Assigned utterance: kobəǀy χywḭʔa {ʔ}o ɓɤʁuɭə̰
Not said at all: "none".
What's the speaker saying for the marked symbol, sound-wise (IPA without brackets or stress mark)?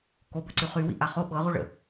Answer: χ